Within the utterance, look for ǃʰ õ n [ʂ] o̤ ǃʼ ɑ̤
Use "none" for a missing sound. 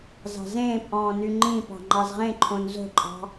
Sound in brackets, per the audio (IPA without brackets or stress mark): z